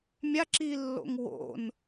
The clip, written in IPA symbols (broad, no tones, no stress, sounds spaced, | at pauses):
mʲ a ǁ i lː o̰ ŋ w o̰ n